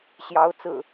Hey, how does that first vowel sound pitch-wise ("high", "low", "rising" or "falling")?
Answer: rising